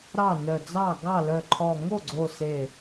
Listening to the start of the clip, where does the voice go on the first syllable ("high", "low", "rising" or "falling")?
falling